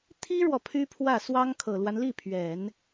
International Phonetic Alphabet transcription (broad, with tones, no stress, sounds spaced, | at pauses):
t̪ʰ i˥ ɻ w ɔ˨ pʰ y˥ pʰ w ä˥˩ s w ɑ˥ ŋ kʰ ɤ˨˩ l w a˦ n l i˥˩ pʰ ɥ ɛ˨˩˦ n